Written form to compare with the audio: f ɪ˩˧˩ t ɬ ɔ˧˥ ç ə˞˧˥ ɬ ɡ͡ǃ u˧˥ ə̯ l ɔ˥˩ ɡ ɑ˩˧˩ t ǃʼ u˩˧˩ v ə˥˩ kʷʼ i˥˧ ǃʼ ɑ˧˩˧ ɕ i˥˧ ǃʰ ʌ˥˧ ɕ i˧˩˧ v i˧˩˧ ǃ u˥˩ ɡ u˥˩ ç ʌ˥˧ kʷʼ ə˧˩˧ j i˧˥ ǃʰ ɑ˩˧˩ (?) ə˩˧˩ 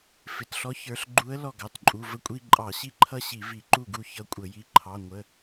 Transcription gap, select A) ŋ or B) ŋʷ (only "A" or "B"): B